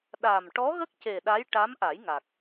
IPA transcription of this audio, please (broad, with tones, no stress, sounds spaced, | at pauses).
ɗ a˨˩ m ʈ ɔ˧˥ ɣ ə˦˥ k̚ c e˨˩ ɗ a˧˥ j ʈ a˧˥ m ʔ a˨˩˦ j ŋ a˨˩ k̚